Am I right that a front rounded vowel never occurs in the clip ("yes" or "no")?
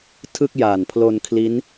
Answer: yes